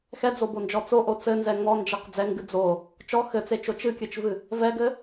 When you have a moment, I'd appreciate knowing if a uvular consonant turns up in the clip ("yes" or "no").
yes